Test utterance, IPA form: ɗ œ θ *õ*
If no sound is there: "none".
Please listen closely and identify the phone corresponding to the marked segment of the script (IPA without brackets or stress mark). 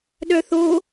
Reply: o